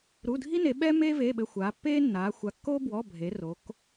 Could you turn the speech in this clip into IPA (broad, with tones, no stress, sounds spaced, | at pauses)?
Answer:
ɾ u˩˧˩ dʱ i˦ n e˩˧ ɓ ɛ˦ m eː˦ v eː˩˧˩ ɓ ɘ˩˧˩ xʷ aː˩˧ pː eː˦ nː aː˩˧ xʷ a˩˧ kː oː˦ b w ɔ˩˧˩ bʱ e˩˧ r o˩˧ k